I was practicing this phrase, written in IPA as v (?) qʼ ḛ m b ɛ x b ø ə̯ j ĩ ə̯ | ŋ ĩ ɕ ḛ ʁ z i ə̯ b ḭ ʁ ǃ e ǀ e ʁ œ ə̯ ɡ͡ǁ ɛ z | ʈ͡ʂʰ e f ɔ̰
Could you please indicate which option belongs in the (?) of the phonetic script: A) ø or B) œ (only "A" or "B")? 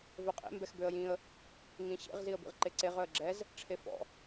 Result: B